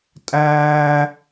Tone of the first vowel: high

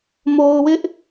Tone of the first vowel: low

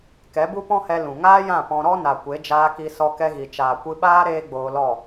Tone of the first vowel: rising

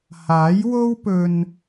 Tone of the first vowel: rising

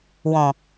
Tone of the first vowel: low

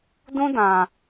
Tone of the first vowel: high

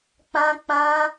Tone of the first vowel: high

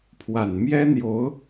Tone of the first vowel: low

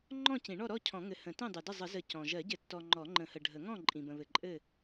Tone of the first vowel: falling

